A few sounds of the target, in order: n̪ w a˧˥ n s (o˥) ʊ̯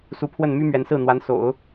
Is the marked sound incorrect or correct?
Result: incorrect: o̰˨˩˦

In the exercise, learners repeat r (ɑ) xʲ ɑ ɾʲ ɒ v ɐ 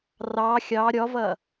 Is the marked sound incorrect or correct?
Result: correct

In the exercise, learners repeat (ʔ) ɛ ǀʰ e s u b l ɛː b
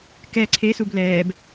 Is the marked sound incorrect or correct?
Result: incorrect: k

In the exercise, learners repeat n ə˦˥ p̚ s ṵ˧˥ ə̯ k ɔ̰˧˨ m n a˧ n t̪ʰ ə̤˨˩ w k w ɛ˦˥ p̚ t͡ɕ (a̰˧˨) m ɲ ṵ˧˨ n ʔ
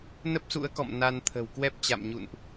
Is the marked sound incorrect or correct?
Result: correct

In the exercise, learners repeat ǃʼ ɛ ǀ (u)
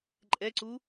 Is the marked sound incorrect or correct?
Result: correct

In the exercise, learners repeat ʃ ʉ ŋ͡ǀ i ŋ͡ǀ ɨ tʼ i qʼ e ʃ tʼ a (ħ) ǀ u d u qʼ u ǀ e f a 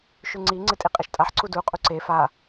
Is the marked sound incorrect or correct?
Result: correct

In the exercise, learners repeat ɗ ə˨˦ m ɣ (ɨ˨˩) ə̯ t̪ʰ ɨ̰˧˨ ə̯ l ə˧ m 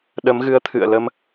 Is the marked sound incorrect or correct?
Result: incorrect: ɨ˨˦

